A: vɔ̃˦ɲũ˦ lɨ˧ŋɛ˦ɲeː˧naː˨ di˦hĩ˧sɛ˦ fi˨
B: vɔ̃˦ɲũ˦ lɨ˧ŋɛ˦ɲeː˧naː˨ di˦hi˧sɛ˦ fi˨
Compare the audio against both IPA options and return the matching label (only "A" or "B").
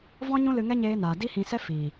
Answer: A